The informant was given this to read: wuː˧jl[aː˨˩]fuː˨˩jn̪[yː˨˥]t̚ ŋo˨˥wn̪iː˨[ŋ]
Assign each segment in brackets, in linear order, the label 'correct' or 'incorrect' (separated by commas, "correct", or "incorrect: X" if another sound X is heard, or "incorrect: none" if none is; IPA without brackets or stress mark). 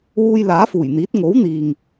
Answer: incorrect: aː˨˥, incorrect: iː˨˥, correct